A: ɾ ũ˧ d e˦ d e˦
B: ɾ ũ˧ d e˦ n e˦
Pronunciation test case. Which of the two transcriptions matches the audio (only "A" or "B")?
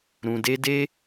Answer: A